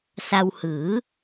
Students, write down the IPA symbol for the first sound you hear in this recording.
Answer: s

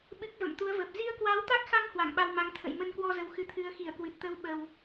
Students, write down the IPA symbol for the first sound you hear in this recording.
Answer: ɓ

